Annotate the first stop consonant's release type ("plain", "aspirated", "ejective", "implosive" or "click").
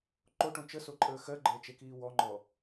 click